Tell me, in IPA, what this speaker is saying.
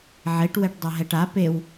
ʕeʈ wɛʈdˤʌɦɛʈa pew

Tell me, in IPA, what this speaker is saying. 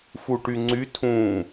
fuʈyŋ͡ǀy tʰũ

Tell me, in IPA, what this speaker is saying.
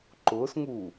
ǃʊːsŋuː

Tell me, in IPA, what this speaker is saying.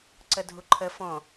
ǀədʱuǃʰə fɔ̃

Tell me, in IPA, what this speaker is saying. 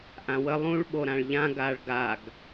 ʔãwə lˠũɭ ɓoɾãɭʎã ɡaɭɡaɡ

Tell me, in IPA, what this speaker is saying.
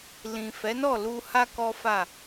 lĩ˨ fɛ˨˦nɔ˦˨ lu˧ha˦ kɔ˦fa˦˨

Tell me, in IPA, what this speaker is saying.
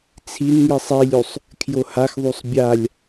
t͡sʰin ŋisˤilʲusˤ | kʰjohaxðˤusˤ bʲalʲ

